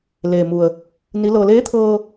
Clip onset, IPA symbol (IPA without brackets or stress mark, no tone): l